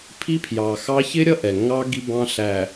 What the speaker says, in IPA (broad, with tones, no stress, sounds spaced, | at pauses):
pʰ i˦ pʰ j ɑ˨ x ɑ˦ ç ɪ˦ ɾʲ ʌ˦ ʔ ɛ˨ ŋ ɑ˦ ɡ i˦ b ɑ̃˦ ɬ æ˨